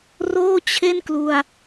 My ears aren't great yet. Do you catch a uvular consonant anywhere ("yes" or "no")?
no